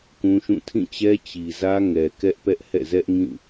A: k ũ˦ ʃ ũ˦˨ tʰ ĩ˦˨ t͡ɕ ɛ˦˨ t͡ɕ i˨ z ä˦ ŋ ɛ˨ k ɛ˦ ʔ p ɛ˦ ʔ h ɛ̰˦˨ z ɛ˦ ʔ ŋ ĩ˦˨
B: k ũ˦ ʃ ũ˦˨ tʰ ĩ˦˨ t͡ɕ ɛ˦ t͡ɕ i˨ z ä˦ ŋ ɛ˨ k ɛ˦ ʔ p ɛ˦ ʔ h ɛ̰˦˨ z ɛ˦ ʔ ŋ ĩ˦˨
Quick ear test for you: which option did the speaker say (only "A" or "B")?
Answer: B